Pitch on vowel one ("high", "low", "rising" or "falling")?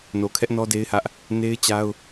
low